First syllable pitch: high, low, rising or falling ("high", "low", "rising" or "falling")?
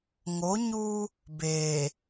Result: rising